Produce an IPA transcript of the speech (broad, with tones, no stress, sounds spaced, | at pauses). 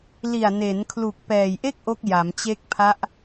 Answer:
l i˨˩ a̯ n e˩˦ n kʰ l u˨˩ k̚ p ɛː˨˩ j ʔ e˥˩ k̚ ʔ o˦˥ k̚ j a˩˦ m t͡ɕ e˦˥ k̚ pʰ a˦˥ ʔ